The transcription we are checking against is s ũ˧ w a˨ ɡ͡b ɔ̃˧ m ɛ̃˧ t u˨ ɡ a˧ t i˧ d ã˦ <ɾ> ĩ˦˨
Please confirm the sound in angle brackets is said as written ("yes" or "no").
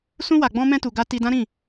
yes